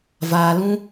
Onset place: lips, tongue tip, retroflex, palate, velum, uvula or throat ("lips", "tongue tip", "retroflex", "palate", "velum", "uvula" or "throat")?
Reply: lips